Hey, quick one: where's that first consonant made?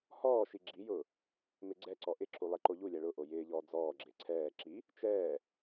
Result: throat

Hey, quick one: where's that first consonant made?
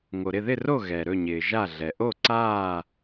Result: velum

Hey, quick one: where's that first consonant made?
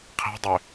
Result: uvula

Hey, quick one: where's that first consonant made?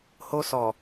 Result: throat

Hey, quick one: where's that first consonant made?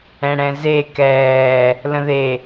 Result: retroflex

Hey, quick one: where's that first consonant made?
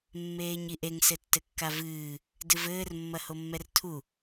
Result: lips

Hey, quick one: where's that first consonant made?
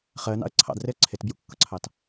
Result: uvula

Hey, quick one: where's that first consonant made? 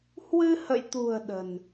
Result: throat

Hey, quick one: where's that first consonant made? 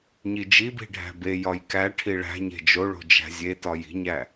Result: palate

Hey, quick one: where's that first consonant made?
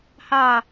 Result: throat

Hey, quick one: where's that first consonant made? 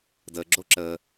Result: tongue tip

